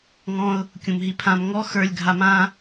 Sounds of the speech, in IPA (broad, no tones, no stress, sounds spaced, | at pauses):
ŋ ɔ̃ ʊ̯ | kʲ ũ m ɦ i pʰ ã m ŋ ɔ x ə˞ lʲ ɡʱ a m ã